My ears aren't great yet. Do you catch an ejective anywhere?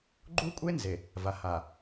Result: yes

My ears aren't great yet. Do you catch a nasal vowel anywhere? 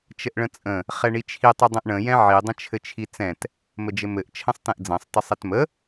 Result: yes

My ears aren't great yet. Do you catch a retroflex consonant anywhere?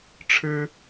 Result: yes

